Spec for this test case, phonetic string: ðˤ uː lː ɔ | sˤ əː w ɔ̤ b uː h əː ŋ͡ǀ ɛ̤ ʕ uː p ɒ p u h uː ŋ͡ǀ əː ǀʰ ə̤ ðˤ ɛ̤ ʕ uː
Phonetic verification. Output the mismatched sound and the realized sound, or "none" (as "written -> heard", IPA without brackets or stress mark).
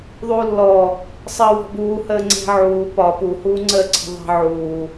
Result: none